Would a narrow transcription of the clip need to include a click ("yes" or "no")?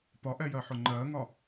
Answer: yes